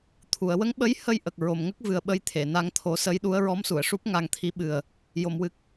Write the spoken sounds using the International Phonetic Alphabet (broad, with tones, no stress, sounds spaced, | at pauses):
t̪ʰ u˨˩˨ ə̯ w ə˧˥ ŋ ɓ ə˧˥ j h ə˧ j ʔ ə˨˩ k̚ ɹ o˨˩ m ŋ ə˦˥ k̚ v ɨ˨˩ ə̯ ɓ ə˧ j t̪ʰ e˨˩˨ n a˧ ŋ t̪ʰ o˨˩˦ s ə˧˥ j ɗ u˧˥ ə̯ ɹ ɔ˧˥ m s u˨˩˨ ə̯ ʂ u˦˥ p̚ ŋ a˧ ŋ t̪ʰ i˧˥ ɓ ɨ˨˩ ə̯ | j o˨˩˨ m w ɨ˨˩ k̚